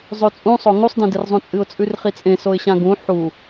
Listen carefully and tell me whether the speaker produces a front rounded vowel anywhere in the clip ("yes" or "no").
no